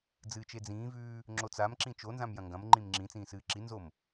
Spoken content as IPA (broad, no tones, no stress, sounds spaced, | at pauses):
d͡z ɨː t͡ʃ e d͡z ĩː v ʉː | ŋ͡ǁ o t͡s a m ǁ ĩ t͡ʃ o n z ã m j ɐ̃ ŋ ɡ ɐ̃ m ŋ͡ǃ ĩ m ŋ͡ǁ ĩ t͡s ĩː s ɨː ǁ i n z o m